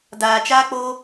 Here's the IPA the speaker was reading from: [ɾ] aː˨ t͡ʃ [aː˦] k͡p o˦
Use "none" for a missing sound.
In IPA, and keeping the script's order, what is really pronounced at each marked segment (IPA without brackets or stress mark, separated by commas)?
d, aː˦